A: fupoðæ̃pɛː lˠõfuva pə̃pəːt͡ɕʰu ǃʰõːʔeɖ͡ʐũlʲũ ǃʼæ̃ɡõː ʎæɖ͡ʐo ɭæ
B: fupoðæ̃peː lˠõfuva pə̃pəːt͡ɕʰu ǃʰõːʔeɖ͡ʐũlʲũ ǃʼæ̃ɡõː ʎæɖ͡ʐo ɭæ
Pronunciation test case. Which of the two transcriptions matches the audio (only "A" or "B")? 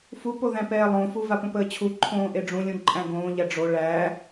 A